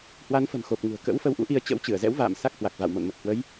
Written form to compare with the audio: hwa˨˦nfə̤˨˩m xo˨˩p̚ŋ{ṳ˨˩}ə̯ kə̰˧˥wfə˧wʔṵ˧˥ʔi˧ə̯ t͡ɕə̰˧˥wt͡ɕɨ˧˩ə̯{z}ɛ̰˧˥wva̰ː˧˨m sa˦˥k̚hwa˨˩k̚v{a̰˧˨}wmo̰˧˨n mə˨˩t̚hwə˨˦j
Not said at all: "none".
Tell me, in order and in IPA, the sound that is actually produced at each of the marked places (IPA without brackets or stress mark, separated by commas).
ṳ˨˩, z, a̰˧˨